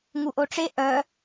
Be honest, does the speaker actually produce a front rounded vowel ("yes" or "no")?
yes